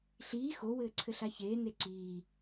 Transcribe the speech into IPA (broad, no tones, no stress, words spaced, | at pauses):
ɬiː xowɘːǀʰɘ ɬaçeː neǀiː